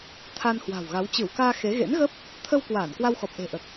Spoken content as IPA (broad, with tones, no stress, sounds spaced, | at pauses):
t̪ʰ a˧ n h w a̤˨˩ w ɣ a˨˦ w t͡ɕ ɨ˧˩ w k aː˧ x e˨˦ ɣ ḛ˧˥ n ɣ əː˦˥ p̚ | t̪ʰ ə˧ w k w aː˧˩ n k w a˧ w x ɔ˨˩ p̚ ʔ e̤˨˩ ʔ əː˨˩ k̚